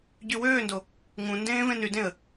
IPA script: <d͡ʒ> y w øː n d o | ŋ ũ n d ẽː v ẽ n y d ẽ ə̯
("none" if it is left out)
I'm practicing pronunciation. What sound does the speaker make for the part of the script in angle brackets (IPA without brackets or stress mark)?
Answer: ɟ